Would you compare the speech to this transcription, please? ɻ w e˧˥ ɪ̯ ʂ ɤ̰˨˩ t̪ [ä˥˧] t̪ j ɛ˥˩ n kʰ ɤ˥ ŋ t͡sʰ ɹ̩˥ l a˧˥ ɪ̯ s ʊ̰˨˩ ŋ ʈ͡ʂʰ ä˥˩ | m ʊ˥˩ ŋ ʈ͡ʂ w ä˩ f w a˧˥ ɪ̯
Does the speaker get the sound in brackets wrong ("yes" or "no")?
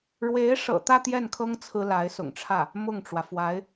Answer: no